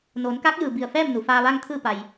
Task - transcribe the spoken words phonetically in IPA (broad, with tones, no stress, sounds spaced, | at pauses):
n oː˩˧ n k a˧˥ k̚ j ɯː˩ b i˧˩ ə̯ f ɛː˥˨ m n u˩ f aː˧ ʋ a˥˨ ŋ t̪ʰ ɯː˥˨ p a˩ j